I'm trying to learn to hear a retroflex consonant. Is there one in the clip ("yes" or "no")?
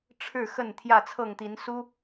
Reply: yes